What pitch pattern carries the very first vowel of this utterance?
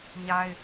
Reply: high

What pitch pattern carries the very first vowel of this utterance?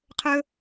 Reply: high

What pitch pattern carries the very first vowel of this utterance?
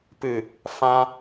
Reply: low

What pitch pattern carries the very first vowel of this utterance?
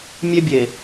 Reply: high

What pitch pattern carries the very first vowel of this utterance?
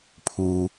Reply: low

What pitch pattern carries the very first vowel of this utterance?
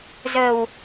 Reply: low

